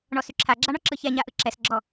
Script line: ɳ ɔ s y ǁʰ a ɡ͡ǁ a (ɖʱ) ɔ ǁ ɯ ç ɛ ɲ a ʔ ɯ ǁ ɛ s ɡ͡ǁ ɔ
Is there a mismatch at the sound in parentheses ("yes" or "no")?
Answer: yes